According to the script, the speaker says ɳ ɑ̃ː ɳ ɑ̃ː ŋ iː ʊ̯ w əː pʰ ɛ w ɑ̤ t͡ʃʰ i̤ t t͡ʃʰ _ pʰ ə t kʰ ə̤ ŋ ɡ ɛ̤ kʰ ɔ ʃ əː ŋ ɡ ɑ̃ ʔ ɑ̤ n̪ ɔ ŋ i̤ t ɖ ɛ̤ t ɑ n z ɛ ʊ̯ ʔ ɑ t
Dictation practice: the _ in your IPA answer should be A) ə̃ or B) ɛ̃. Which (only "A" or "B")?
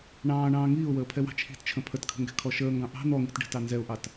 A